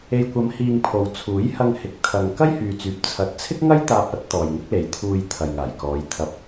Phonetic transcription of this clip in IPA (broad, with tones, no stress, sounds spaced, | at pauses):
e˨ j kʷ ɐ˨˧ m h iː˧ ŋ pʰ o˨ w t͡sʰ uː˨˥ j h ɐ˧ ŋ h ɪ˨˥ k̚ t̪ʰ ɐ˧ ŋ k ɐ˥ j h yː˨ t͡s yː˨ p̚ t͡sʰ ɐ˨ t̚ t͡sʰ ɪ˥ k̚ ŋ ɐ˥ j t̪ aː˧ p̚ ɐ˥ t̚ t̪ ɔː˨ j ŋ ɪ˥ k̚ l e˨˧ j t̪ʰ uː˧ j t̪ʰ ɐ˨ j ŋ aː˨˩ j k ɔː˨˧ j t̪ʰ ɐ˧ p̚